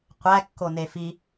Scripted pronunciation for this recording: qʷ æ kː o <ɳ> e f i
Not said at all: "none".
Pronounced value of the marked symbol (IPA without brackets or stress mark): n